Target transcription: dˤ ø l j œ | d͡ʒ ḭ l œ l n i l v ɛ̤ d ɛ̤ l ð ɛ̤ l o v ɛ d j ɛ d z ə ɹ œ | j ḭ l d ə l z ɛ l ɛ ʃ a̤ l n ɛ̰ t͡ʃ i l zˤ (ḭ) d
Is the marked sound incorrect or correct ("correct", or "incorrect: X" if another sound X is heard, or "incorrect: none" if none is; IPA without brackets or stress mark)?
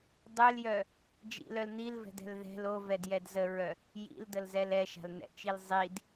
incorrect: i